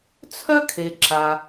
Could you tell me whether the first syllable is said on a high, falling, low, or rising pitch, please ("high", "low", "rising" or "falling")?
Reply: high